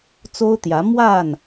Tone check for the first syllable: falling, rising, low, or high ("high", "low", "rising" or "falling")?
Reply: high